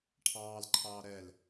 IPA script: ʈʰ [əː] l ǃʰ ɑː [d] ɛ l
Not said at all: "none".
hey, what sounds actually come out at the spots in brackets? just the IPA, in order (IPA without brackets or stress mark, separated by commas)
ɑː, ɾ